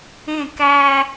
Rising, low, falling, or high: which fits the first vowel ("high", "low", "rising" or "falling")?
falling